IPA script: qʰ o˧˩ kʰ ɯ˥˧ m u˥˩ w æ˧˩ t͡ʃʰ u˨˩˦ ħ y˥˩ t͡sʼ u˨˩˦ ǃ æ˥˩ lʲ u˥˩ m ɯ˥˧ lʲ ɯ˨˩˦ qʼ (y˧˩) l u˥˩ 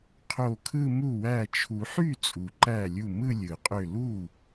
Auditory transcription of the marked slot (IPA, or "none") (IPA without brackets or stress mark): ø˧˩